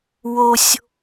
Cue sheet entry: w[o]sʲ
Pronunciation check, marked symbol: correct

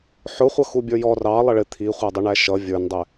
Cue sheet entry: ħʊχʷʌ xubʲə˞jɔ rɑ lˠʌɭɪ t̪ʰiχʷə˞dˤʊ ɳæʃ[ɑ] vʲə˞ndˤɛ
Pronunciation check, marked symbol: incorrect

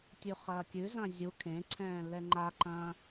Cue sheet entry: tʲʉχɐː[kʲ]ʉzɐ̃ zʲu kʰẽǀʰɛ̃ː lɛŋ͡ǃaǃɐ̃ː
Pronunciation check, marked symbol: correct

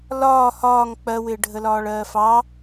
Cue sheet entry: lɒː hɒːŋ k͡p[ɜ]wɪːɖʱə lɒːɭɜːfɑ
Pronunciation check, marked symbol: correct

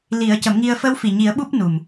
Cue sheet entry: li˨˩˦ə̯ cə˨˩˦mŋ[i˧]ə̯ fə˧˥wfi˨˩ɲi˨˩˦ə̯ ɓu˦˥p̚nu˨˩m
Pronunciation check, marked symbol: correct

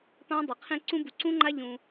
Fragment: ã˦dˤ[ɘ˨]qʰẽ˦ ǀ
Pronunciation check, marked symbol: incorrect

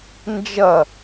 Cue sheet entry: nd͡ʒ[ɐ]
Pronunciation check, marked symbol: correct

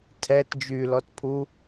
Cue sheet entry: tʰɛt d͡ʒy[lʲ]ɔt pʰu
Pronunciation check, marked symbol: incorrect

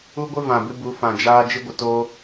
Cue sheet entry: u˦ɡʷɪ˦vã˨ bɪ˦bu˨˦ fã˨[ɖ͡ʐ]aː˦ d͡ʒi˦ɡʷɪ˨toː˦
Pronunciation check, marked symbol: incorrect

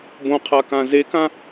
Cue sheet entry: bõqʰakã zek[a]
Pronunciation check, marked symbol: incorrect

